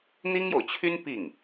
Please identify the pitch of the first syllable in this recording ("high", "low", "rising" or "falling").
high